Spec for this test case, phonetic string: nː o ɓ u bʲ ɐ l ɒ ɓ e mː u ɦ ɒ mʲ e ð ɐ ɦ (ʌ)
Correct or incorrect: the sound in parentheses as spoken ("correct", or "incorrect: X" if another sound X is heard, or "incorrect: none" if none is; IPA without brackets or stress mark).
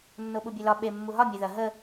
incorrect: ə